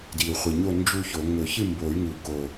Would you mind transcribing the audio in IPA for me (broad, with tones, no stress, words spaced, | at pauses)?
di˨˩u̯χʷɨ˨˩ɲo˥˨ nd͡ʒu˥˨ço˨˩˦ ŋɵ˨˩˦çɨ˥˨mbo˨˩˦y̯ŋu˨˩ ko˨˩